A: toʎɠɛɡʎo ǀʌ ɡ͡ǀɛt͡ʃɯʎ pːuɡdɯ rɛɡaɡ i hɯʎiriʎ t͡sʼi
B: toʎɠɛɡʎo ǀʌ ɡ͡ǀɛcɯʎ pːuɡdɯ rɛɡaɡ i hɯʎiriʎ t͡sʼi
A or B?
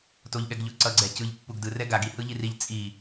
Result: B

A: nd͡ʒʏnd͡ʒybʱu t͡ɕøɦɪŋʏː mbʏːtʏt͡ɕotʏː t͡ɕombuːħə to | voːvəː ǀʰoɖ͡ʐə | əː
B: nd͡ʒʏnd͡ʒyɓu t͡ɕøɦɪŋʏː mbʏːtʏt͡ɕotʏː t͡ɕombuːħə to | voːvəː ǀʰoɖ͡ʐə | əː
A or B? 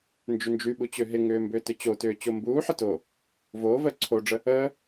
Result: B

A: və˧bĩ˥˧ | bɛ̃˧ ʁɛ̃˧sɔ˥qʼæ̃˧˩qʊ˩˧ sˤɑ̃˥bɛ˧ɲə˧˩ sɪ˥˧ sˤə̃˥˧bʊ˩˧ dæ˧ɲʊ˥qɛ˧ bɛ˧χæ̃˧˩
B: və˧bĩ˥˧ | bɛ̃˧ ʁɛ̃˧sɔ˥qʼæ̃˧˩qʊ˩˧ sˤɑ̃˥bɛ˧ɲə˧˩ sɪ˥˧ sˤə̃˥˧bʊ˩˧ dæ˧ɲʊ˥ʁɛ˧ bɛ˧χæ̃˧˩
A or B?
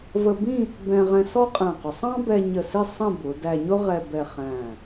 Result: B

